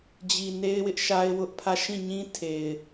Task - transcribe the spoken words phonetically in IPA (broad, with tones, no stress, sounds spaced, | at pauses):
d͡ʑ i˨ n e˦ ɪ̯ w ɪ˦ ʔ ʃ a˦ ɪ̯ w ʊ˦ ʔ pʰ ä˦˨ ʃ ĩ˦˨ ɲ ĩ˦ tʰ e˨ ɪ̯